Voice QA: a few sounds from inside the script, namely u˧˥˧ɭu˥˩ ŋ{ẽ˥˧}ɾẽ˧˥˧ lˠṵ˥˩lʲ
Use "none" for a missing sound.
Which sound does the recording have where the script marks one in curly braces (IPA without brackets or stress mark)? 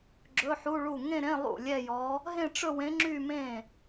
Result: ẽ˥˧